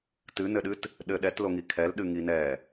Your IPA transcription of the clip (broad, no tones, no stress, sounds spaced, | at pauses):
t ɨ n ɘ ɗ ɨ t | ɗ ɘ ɗ ɛ t l o ŋ i kʰ ɛ l ɗ ɨ ŋ i n ɛ